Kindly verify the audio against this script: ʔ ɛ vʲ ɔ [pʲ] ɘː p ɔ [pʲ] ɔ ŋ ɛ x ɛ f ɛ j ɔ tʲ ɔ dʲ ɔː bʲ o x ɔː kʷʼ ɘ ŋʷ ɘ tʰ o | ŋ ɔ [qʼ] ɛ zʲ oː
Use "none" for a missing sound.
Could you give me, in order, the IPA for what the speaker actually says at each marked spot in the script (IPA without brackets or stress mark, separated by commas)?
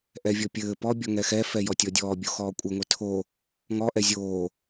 pʲ, bʲ, ʔ